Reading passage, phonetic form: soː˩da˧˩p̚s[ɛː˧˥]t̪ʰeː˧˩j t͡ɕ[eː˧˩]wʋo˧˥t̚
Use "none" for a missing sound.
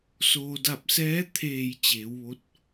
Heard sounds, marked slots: ɛː˧˥, eː˩˧

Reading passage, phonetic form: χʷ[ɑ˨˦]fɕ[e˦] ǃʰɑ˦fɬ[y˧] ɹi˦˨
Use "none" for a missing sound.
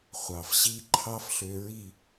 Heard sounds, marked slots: ɑ˨, i˦, ø˧

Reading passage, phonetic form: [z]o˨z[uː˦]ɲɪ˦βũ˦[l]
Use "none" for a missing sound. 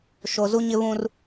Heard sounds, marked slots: ʃ, u˦, r

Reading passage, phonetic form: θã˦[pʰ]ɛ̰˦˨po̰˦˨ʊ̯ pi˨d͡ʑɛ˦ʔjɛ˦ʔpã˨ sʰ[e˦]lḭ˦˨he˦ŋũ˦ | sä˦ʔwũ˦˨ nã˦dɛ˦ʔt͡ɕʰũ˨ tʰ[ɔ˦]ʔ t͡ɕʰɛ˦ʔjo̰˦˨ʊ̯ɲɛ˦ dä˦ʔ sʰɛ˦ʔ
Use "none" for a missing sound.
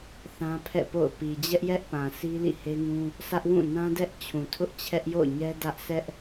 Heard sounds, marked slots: pʰ, i˦, ʊ˦

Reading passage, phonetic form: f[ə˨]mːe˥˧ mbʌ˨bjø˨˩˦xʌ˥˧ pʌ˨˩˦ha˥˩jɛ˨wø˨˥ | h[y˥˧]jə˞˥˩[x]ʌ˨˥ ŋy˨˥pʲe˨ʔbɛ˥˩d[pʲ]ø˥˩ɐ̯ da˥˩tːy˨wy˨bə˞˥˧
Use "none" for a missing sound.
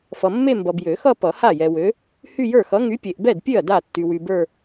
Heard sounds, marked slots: ʌ˨, y˥˧, x, pʲ

